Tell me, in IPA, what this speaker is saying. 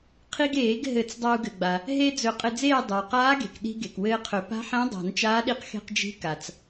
qʰi˧ɡ eː˨˩˦ɡ ɦɘ˨˩˦t͡s dˤa˧u̯ɡɘ˩ɡ͡ba˩ | ɦe˧ d͡zɵ˨˩˦ qʼɘ˧d͡zeː˥˨ dˤɵ˩u̯qaː˧˥ɡe̤˩k ɗi̤˧ ɡe˩kwɘː˧qʰɵ˨˩˦ pa̤˧˥ħẽ˧˥ dˤa̤˨˩˦nt͡ʃaː˧˥ɗi˧˥q xe̤˧qd͡ʒi̤˧˥ ka˩t͡s

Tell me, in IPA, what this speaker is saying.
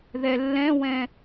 ðɛlːɛ̃wɛ̃

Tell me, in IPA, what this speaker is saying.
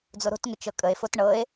d͡zoɾo̤tŋʏ t͡ʃɤkʼəe̯fot ɳɤe̯

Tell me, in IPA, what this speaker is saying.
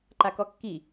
ǃakɔkːi

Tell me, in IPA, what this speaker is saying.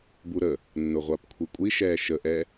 buɾə | nːʊʁʷapkʷʰikʷʼi ʃɛːʃəʔɛ

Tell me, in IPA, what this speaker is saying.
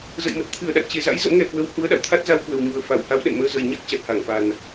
zə̰˧˨jmə˨˩t̚ t̪ʰɨ˧˩ə̯ɗa̰˧˨nt͡ɕe˨˩za̰˧˥j zə̰˧˥mŋɛ˨˩kwə˨˦w hu˨˦ə̯ɗa̰˧˨w t̪ʰa˦˥t̚za˧wkwə˨˩w ɲu˨˩ə̯fa˧˩wha˨˦w ɗɛ̰˧˨nməː˧ zə˨˩j ɲa˦˥k̚ t͡ɕa˨˩t̚ha˧˩ŋfa˨˩n

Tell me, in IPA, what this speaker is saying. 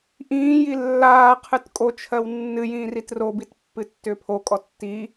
ʔĩː jilːaːqʰɨt kʼot͡ʃʰɜw nːɨjĩː ritrobit pːɨtːʏːpʰokʼɔ tːi

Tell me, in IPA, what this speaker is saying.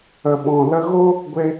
ə˨ɓɔ̃˨ lə˧ɣo˦ | ɡʷe˧

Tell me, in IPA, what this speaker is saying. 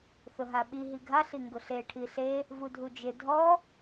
θʊɦaɓi ɦiɡʱa ɬiŋɡʊɬe ʈʰiɬe | vudʱud͡ʒɪ dʱɔ

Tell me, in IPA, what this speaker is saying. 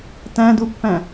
tæ̃dupːæ̃

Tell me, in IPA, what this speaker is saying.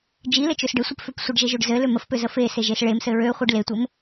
d͡ʒilɘt͡ʃøs ɖɘsʷɘpføp sʷɘɖʒeʒøɖ zɘlø məfpøzə feseʒes ɭemsɘ ɹøχʷiɖ letʷɘm

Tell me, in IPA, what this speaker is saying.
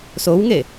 sowŋe

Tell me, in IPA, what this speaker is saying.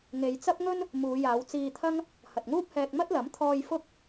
ŋe˨˧jt͡sɐ˥p̚ŋɵ˥n | muː˨˧jaː˨˧w t͡siː˧t̪ʰɐ˥ŋ | hɐ˨t̚ŋuː˥p̚hɛː˧k̚ mɐ˥t̚lɐ˨˥mt̪ʰɔː˧j fʊ˥k̚

